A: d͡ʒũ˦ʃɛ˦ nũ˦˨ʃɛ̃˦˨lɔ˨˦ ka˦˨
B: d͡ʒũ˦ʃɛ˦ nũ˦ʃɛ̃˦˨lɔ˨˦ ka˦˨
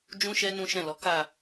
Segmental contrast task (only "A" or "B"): B